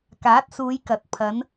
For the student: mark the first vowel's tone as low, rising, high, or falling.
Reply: rising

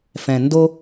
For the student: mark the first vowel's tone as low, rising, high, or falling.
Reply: low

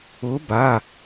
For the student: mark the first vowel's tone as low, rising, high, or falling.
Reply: rising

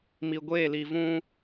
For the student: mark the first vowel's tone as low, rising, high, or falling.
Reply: low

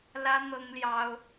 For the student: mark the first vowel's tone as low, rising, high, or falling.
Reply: high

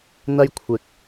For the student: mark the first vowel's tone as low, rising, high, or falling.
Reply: high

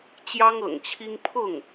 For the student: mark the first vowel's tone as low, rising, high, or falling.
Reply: high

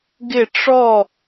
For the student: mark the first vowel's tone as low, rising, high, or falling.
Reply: falling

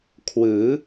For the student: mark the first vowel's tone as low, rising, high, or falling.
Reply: rising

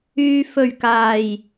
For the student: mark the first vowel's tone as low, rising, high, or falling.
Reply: low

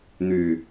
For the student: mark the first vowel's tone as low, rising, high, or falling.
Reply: low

